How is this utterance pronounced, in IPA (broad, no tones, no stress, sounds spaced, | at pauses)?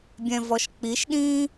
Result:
bʲ ɛ̃ v ɔ ʃ k͡p i ʃ ɗ ĩː